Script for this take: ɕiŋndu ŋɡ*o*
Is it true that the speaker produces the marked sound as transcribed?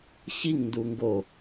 yes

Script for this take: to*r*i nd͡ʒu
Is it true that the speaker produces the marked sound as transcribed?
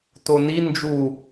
no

